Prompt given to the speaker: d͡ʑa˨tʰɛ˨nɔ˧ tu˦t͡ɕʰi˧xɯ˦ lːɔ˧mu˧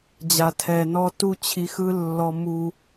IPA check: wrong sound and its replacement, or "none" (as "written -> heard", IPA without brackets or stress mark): none